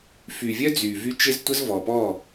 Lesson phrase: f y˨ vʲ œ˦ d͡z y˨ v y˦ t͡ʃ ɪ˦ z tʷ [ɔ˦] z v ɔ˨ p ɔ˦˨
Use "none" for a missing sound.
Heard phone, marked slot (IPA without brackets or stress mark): ə˦